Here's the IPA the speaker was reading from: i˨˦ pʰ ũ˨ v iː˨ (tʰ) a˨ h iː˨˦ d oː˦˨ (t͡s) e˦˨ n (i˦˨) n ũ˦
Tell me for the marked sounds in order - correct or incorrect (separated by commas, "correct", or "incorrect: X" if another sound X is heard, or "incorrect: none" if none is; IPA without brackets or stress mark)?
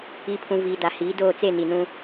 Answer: incorrect: d, correct, incorrect: i˨